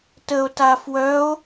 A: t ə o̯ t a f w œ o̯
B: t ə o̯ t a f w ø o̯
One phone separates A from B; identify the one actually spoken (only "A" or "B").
A